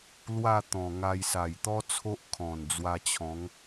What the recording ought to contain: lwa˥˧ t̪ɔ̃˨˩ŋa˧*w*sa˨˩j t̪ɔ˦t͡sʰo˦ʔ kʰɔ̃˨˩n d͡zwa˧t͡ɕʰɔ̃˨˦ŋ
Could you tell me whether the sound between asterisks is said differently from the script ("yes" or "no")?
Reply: yes